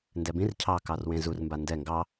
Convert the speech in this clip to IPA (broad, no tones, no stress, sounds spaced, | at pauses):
n d ɛ b ĩ r cʰ ɑ k ɑ r w ẽ z u r m b a n d ɛ ŋ ɡ ɑ